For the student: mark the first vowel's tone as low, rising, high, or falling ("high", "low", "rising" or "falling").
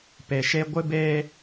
low